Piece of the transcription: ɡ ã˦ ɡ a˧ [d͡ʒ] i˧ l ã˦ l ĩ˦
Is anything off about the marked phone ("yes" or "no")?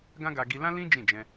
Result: yes